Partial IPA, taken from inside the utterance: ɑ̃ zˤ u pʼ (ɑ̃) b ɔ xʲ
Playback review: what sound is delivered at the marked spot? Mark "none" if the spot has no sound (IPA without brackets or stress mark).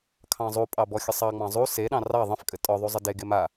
ɑ